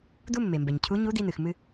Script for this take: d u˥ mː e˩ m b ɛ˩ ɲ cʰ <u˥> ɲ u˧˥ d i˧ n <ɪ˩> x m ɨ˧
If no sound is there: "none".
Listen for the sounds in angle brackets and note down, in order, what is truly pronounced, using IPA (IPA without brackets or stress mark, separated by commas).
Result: u˧˥, ɨ˩